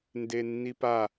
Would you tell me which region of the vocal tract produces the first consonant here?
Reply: tongue tip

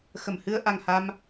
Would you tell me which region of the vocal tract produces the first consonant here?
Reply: velum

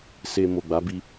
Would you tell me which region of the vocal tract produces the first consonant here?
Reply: tongue tip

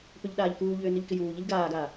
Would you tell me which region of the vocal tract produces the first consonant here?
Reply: lips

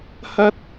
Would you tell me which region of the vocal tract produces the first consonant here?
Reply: throat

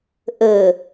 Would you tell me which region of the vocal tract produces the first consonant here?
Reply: throat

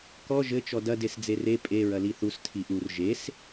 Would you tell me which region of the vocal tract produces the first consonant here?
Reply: velum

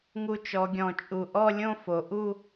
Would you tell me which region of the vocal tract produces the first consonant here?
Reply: velum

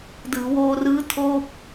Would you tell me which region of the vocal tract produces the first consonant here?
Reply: tongue tip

